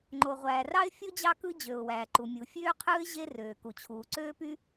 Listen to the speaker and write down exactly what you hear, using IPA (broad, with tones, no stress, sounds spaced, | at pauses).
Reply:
ŋ͡ǃ o˩ ʁʷ æː˩ r ɑ˥ ɪ̯ fʲ o˥ d͡ʑ ɑ˥ k ɯ˥ d͡ʑ ø˩ ʊ̯ w æː˩ ǃ u˩ mʲ u˩ fʲ øː˥ qʰ ɯː˥ ɪ̯ ʑ e˥ r øː˩ k u˩ t͡ɕʰ uː˩ ǀ øː˥ p y˥